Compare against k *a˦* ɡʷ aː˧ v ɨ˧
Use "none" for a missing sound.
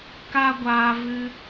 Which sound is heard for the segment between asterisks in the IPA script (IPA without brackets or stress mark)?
a˦